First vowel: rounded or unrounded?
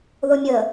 rounded